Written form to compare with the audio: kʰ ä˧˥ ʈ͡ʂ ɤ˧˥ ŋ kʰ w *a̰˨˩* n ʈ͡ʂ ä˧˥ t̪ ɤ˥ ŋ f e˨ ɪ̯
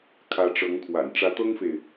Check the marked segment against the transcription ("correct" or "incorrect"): correct